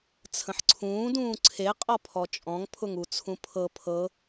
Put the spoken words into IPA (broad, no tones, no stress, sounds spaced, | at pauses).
t͡sʰ ə̃ ħ ǀʰ ũː d ũː ǀʰ e qʼ ɔ pʰ ɔ t͡ʃʼ ɔ̃ ŋ pʰ ʊ ŋ u t͡sʰ ũ pʰ ɤ pʰ ɤ